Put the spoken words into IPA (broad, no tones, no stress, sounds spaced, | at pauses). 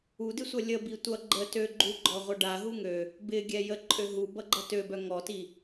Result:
u d ɪ sʷ ʌ lʲ ə b i tʷ ʌ ɡ͡ǃ ə t ø ɡ͡ǃ u ɡ͡ǃ ɔ ʁʷ œ ɖ a ɦ u ŋ ø | b ɪ ɡʲ ɛ j ə ǃʼ ø ɦ u b ʌ ɡ͡ǃ ʌ t ø b œ ŋ ɔ t i